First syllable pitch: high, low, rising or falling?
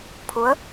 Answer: rising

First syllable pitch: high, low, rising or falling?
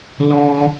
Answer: high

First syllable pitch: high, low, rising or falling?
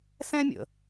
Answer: high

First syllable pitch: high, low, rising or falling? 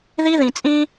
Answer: high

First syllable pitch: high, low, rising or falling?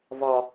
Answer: low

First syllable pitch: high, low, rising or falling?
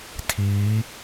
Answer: rising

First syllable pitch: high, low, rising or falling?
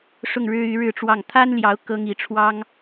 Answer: falling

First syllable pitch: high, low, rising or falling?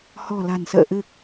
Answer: low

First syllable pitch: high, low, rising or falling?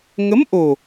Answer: rising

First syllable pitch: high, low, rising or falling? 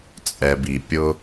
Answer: low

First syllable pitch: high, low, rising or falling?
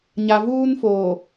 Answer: low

